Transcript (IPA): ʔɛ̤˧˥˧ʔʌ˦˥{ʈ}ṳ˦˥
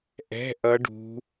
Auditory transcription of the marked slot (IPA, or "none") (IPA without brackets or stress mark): ɖ